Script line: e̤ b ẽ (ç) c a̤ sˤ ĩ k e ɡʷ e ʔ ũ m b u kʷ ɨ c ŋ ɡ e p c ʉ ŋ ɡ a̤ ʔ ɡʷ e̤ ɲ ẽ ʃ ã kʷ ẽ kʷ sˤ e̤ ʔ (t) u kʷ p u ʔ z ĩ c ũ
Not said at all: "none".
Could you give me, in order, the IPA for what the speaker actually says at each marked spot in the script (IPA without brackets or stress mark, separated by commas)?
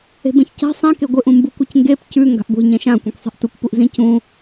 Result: ç, t